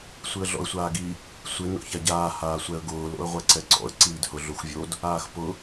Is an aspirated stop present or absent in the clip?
absent